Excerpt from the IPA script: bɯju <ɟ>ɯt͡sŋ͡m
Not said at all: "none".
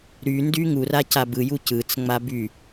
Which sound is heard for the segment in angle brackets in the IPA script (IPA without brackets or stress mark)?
c